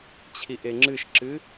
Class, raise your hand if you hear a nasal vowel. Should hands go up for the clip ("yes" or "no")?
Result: no